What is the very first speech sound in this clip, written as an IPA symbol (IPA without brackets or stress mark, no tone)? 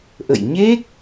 ʔ